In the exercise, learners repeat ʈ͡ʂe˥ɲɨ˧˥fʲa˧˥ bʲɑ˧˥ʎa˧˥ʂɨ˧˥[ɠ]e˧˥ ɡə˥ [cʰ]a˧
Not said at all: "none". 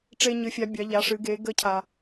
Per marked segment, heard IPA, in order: ɡ, cʰ

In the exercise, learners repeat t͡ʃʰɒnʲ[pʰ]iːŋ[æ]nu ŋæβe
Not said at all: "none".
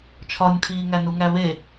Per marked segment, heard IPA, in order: pʰ, æ

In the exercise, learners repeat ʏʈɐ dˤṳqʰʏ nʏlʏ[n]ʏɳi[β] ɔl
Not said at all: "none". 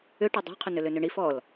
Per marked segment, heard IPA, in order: n, f

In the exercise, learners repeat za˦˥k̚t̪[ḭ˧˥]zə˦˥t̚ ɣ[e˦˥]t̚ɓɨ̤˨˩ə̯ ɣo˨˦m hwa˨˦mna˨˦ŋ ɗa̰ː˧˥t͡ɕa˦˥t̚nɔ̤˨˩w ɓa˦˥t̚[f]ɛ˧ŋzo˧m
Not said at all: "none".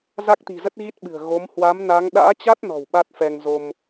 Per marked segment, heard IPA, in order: i̤˨˩, i˦˥, f

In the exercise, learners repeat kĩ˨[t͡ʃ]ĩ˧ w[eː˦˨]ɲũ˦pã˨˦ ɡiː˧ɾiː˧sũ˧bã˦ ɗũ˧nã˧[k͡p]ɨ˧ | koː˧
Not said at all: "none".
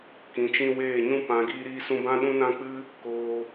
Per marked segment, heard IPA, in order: t͡ʃ, eː˦˨, k͡p

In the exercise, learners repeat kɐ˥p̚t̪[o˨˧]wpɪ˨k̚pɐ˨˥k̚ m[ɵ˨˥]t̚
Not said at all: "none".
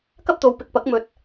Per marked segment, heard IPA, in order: o˨˧, ɵ˨˥

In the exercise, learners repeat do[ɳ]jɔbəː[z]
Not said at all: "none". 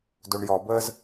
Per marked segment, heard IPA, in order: ɳ, z

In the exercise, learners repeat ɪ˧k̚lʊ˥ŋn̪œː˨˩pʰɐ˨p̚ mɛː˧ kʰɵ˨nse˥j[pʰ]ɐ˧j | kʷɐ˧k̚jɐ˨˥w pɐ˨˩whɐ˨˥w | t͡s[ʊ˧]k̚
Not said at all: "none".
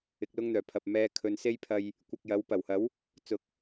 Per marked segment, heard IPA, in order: pʰ, ʊ˧

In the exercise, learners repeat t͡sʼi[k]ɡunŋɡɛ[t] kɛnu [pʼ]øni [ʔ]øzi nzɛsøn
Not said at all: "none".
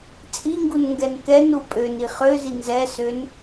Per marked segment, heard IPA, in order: ŋ, n, pʼ, χ

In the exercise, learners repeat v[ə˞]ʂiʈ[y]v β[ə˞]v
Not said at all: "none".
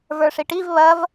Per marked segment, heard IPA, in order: ə˞, i, ɐ

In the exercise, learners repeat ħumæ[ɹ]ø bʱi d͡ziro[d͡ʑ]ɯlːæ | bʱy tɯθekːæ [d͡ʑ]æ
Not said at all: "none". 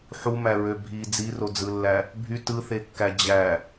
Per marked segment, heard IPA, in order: ɹ, d͡z, d͡ʑ

